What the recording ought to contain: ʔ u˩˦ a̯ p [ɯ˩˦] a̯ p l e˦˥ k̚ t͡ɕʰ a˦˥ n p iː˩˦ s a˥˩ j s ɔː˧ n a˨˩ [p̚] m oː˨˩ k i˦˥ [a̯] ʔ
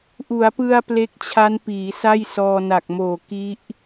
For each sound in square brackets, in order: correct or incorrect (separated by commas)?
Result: incorrect, incorrect, incorrect